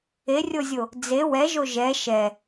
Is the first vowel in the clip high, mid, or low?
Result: mid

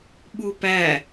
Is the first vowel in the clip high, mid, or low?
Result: high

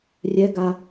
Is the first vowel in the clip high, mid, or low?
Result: mid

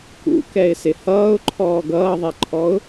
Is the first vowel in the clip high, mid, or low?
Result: high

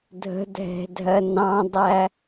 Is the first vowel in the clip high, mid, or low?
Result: mid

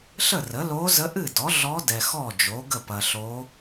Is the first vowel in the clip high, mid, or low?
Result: mid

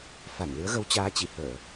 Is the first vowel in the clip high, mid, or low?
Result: low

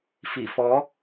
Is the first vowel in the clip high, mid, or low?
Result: high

